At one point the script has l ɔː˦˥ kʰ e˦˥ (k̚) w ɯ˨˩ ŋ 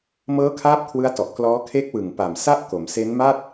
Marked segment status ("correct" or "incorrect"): correct